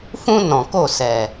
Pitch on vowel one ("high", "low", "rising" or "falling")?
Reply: high